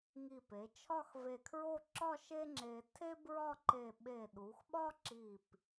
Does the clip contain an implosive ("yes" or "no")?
yes